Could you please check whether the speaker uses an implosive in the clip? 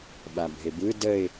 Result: yes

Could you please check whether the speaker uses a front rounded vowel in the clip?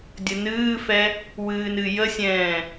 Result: no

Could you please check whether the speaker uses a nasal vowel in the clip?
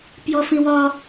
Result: yes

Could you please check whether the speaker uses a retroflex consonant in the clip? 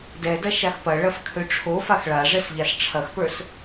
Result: yes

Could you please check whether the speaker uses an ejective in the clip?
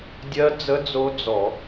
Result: no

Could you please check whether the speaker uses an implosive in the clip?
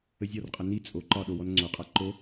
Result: yes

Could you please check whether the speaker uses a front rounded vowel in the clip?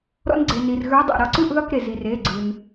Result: no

